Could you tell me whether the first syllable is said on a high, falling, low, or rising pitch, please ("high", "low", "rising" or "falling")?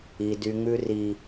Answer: high